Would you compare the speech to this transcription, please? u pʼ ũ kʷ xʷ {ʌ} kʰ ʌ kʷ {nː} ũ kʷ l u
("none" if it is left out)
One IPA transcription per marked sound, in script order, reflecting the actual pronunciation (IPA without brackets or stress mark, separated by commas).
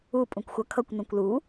ʌ, n